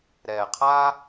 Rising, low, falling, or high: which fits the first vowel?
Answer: low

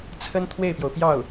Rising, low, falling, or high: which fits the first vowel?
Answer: high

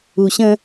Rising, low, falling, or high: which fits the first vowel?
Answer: low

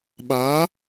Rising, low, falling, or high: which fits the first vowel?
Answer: rising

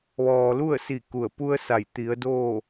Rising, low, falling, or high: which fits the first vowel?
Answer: low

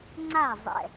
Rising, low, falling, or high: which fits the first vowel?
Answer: falling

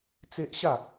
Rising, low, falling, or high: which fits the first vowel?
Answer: high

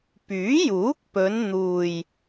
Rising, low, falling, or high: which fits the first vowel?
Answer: rising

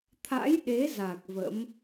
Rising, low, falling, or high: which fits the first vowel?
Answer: rising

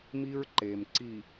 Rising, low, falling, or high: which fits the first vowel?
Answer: high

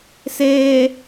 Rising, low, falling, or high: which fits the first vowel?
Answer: low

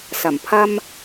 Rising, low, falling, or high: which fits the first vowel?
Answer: low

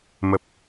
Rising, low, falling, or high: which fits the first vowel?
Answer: low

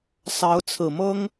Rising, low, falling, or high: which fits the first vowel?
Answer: rising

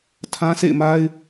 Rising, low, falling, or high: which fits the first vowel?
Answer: high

